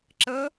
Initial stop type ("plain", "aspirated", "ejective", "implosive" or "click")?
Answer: click